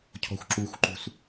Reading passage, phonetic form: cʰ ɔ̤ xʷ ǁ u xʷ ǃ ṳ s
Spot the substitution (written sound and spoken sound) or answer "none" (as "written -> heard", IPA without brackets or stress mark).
none